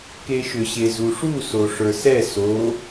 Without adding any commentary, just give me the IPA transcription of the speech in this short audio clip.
k e ʃ ʏ ɕ e z u ʂ u s o ʂ ə˞ s ɛ s o

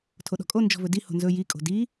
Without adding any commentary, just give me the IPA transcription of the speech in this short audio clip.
tʰ o ɗ ɔ̤ kʼ o n d͡ʒ ɔ̤ v ɵ d i h o̤ n z ɵ j i kʼ o̤ d i

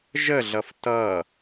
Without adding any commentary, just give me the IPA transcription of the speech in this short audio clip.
ʒ ə ɮ ʌ f t ʌ

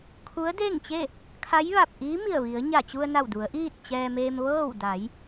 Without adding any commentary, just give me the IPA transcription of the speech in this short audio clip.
kʰ u˧˥ ə̯ d e˥˨ ŋ t͡ɕ e˥˨ | kʰ a˧˥ j ʋ a˧˩ p̚ ʔ iː˧˥ m i˧˩ ə̯ ʋ i˩˧ ə̯ ɲ a˧˩ t͡ɕ u˧ ə̯ n a˧˩ w d u˩˧ ə̯ ʔ iː˥˨ t̚ t͡ɕ ɛː˧ m eː˧ m ʋ ɤː˥˨ w d a˩˧ j

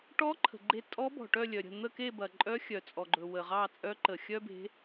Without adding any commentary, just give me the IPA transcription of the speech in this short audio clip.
ʈ ɔ˧˥ ǃʰ ə̤˩ ɡ͡ǃ e˧˥ tʼ ɔ˧˥ b ɔ̤˩ ʈ œ˦˨ lʲ œ˩ ɾʲ ə̤˦˨ n̪ ə˦˨ k e˦˨ b ɐ˩ ǃʼ œ˧˥ xʲ œ˩ t͡sʼ ɔ˩ ɡ͡ǃ ɵ˩ w ə˩ ʁ ɑ˦˨ t͡sʼ œ˧˥ ǃ ə˩ xʲ œ˥ b e̤˧˥

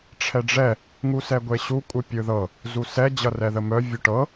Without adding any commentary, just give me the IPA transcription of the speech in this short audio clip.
ʈ͡ʂʰ ɛ ɖ͡ʐ ɛ | ŋ u s ɛ ɡʷ e ɕ u kʷʼ ɯ pʲ ɯ ð ɤ | z u s ɛ d͡ʑ ʌ r ɛ ð ə m œ vʲ u ʈ ɤ

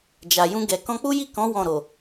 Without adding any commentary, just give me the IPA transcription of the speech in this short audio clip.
d͡ʒ a˨ j ũ˧ ɡ ɛ˨ k ɔ̃˧ k͡p u˦ j i˦˨ k ɔ̃˨˦ w ɔ̃˦˨ ɾ o˨

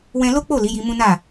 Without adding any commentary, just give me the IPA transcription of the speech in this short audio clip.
w ɛ̃˧ l o˦ k͡p o˦˨ l i˨˦ j i˧ m ũ˦ n a˦˨

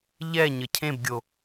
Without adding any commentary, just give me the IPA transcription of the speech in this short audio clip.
ʎ ɛ ɲ ə cʰ ẽ b ɡʲ o

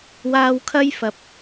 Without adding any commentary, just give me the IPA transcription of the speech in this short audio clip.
w aː˧ w kʰ ɐ˥ j f ɐ˨ p̚

